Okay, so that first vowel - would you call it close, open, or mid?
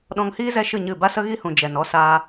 mid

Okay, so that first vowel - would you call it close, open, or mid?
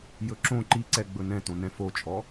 mid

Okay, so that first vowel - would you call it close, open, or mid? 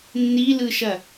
close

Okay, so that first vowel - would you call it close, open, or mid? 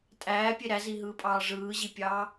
open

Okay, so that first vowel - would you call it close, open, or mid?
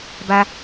open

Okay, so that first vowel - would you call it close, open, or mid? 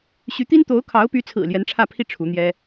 close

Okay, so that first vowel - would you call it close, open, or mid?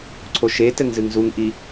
mid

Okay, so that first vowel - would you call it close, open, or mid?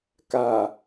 open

